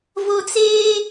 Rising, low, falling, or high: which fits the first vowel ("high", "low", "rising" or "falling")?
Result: high